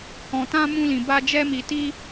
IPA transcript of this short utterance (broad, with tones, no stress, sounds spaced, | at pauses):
h ɔ̃˧ t ã˦ m ũ˦ l ĩ˧ b a˦ d͡ʒ ɛ˦ m i˧ t i˦